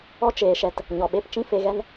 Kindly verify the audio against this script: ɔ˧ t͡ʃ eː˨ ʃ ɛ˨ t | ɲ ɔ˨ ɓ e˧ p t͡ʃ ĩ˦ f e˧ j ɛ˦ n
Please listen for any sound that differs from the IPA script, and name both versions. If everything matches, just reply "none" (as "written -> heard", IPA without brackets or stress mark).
j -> ɣ